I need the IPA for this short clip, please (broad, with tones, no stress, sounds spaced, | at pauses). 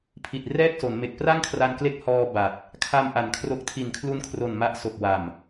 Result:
pʰ i˨˩ t̚ r ɛː˥˩ k̚ s o˩˦ n m e˨˩ k̚ p r a˥˩ ŋ kʰ r a˧ n k l e˦˥ k̚ h ɔː˧ b a˨˩ t̚ | kʰ a˧ m ʔ a˨˩ n kʰ r o˦˥ k̚ tʰ i˨˩ n kʰ l u˦˥ n kʰ r o˨˩ n m a˦˥ ʔ s o˨˩ k̚ w a˨˩ m